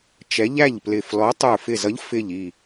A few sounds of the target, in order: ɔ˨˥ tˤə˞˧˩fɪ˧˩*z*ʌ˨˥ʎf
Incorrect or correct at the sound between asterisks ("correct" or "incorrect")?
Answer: correct